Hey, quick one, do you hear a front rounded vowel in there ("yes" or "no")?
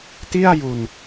no